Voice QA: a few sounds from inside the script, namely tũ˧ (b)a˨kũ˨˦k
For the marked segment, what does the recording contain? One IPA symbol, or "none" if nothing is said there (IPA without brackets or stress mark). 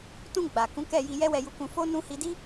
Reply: ɡ͡b